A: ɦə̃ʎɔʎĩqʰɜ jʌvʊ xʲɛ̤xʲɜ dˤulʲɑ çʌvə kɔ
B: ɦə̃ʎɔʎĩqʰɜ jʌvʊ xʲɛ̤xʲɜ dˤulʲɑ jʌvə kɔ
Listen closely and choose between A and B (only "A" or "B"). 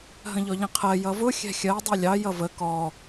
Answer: B